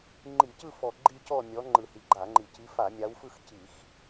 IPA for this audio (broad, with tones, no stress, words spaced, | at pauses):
ŋ͡ǃi˧˩˧cɯ˥˧fɔ˨˩ ɡ͡ǃi˥˧cɔ˥˧ mʲɔ˨˦ ŋ͡ǃɯ˨˩hi˨˩ɡ͡ǃa˧˩˧ŋ͡ǃi˨˩ ci˨˦fa˧˩˧mʲa˨˦wfɯ˥˧x ci˧˩˧x